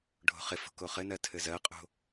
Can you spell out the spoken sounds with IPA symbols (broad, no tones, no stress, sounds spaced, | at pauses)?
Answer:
ɖʱ o̤ χ ɪ f o̤ k o χ ɘ n ɜ tʰ ɘ z ɜ qʼ o̤